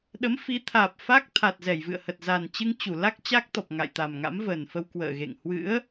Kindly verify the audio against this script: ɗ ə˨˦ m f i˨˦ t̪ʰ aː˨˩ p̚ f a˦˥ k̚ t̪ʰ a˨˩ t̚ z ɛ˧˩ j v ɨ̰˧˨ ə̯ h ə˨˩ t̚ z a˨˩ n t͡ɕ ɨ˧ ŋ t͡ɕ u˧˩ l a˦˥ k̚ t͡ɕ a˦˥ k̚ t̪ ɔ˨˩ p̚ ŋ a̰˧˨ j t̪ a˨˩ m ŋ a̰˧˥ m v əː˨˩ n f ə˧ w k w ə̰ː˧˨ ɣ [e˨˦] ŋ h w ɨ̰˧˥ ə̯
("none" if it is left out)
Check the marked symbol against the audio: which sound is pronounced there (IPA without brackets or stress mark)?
ḛ˧˨